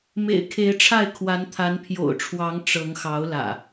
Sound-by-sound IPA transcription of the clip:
mḛ˨˩ɪ̯kʰe˨˦ɪ̯ʈ͡ʂʰa˥˨ɪ̯ kʰwa˨˦nt̪ʰa˨˦npʰjo̰˨˩ʊ̯ʈ͡ʂʰwɑ˨˦ŋ ʈ͡ʂɤ˨˦ŋxɑ˨˦ʊ̯lä̰˨˩

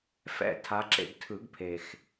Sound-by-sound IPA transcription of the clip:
fɛ̰˦˨ tʰa˨˦ǁḛ˦˨ɡ tʰɯ˨˩˦ɡ pʰe˩x

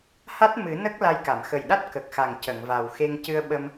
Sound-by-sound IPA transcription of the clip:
ha˦˥t̚ mɨ˨˩˦ nə˦˥k̚ la˧jka˨˩˨m xə˨˩jɗa˦˥t̚ kə˨˩k̚xa˨˩ŋ cə˨˩˨ŋva˨˩wxe˧ŋ cɨ˧ə̯ɓə˧m

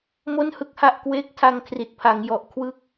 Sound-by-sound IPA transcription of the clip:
mo˥˩nhɯ˦˥k̚ha˥˩ʔkweː˥˩k̚ tʰa˧ŋkʰri˨˩t̚pʰa˩˦ŋjɔ˨˩ʔ kʰwɯ˦˥k̚

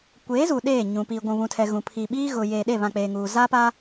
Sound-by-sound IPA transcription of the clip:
kʷeː˨˦zuː˨ ɗeː˦˨ɲũ˨ piː˨ɡʷũ˨βũ˨tʰɛ˨ ɣũ˨pʰi˨ɓiː˦ ɣʊ˨jeː˨ ɗe˦˨βã˨k͡peː˨ŋuː˨ zaː˦paː˦

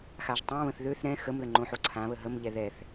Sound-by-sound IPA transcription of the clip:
xaʒtˤãβə̃θ ðøθ ɾɛ̃ xəmðə ŋ͡ǃõħoǀʰãβə ɦəmʎɛ ðɛθ

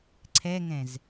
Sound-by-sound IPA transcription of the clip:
ǀʰɛŋɛ̃z

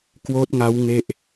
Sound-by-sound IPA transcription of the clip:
kwoː˦˥t̚ŋa˦˥w ŋe˥˩ʔ

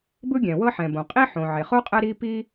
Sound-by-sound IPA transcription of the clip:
bɯ˥ɡʲɛ̃˩wɤ˥ ħɛ̃˩ bõ˩qʼi˥ ħõ˩ʕe˩χo˥ qʼɛ˥ɾi˥pi˥

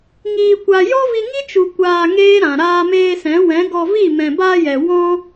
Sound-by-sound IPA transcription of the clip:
ŋiː˨kʷa˨ jɔ˦vi˧ ŋi˦t͡ʃu˨ kʷaː˧ŋeː˦ɾã˨ ɾaː˧meː˧sɛ̃˨˦ wɛ̃˨˦ɡɔ˧vi˦˨ mɛ̃˨baː˧jɛ˨ wɔ̃˦

